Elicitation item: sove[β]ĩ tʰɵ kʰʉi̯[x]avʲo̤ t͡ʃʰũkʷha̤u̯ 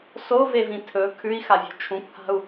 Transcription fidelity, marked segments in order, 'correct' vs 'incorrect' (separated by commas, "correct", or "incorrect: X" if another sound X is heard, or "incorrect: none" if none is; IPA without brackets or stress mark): incorrect: v, correct